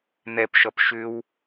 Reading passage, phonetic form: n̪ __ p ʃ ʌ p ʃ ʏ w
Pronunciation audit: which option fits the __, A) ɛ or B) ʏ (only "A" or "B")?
A